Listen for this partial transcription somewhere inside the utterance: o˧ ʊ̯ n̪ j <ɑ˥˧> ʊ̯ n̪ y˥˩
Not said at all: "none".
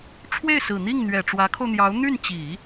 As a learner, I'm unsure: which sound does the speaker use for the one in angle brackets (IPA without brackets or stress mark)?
ɑ˧˥